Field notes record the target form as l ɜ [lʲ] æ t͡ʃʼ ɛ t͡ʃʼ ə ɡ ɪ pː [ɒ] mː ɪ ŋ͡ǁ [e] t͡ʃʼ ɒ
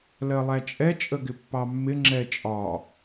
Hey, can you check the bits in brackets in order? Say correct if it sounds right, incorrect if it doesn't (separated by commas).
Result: incorrect, incorrect, incorrect